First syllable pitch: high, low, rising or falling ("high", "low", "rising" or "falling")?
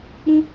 high